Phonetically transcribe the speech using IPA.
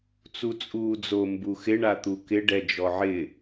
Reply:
t͡s u t͡sʼ uː d͡z o m b u x ɪ ɳ a t̪ u k ɪ ɖ ɛ d͡ʒ ɔ ʕ ɪ

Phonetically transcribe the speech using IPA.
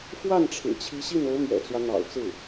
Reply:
f w a˥˩ n ʈ͡ʂʰ ɻ̩˨˩ t͡ɕʰ i˧˥ ɕ i˥˩ n o˧˥ ʊ̯ m ɥ ɛ̰˨˩ t͡s w ä˦ n̪ ɑ̰˨˩ ʊ̯ t͡s ɹ̩˥˩

